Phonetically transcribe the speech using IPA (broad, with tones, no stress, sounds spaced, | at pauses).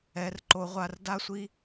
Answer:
ɛ˨˥ r ǃ o˨˥ ʁʷ a˨˥ r d a˥ sʷ i˥